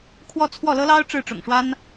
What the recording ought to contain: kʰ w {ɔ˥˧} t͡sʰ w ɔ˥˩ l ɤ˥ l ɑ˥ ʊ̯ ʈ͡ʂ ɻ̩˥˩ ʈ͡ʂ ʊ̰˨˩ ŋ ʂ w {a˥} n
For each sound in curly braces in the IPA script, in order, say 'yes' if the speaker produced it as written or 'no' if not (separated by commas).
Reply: yes, yes